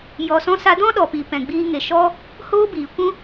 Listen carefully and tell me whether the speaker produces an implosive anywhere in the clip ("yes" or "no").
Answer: yes